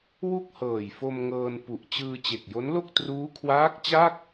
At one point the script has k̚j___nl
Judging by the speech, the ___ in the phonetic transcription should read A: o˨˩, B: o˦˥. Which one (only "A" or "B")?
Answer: B